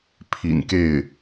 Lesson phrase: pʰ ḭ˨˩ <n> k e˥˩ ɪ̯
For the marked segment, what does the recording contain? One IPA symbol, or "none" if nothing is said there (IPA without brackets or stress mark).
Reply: n